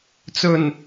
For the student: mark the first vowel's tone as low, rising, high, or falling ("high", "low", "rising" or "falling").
low